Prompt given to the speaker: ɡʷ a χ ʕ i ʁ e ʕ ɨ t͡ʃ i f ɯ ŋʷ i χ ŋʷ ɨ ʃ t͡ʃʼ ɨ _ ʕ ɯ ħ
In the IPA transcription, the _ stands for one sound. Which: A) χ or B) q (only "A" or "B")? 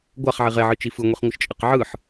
B